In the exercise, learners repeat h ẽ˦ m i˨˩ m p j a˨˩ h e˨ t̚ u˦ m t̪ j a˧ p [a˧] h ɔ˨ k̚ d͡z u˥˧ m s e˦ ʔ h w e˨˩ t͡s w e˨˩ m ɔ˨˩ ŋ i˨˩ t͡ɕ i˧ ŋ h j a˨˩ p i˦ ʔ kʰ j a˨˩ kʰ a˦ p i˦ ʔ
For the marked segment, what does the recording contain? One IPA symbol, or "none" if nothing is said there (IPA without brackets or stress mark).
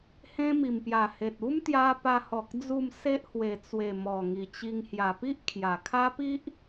a˧